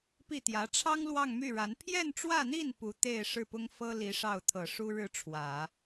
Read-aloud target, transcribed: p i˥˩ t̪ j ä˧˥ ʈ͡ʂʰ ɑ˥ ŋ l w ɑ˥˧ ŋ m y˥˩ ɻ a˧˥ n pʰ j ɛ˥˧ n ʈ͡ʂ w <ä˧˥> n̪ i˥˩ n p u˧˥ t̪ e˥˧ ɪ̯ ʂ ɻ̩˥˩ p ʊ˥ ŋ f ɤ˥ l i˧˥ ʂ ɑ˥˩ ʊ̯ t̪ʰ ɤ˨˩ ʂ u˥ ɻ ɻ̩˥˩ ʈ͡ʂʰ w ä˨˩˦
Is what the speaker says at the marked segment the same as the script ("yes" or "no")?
no